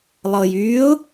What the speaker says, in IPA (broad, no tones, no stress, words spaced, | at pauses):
lˠɤjyːʊ̯